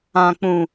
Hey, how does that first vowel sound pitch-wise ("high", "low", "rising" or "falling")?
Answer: low